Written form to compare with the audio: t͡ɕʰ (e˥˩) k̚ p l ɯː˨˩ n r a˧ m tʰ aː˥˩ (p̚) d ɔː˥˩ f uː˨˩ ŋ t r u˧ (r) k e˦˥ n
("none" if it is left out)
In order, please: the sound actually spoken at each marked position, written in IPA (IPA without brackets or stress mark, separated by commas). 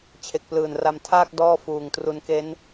e˨˩, k̚, n